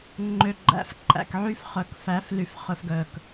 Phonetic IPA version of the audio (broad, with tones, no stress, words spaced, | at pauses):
ŋ͡ǃø˨ɡ͡ǃæ̰˨f ǃʼæ̰˨kʕy˦fχœ˨kfæ˨˦f ly˨f χɵ˨fɡœ˨k